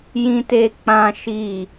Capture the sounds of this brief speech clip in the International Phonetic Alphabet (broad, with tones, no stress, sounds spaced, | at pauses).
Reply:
j ĩ˦ t e˦ k͡p ã˦ ʃ i˦˨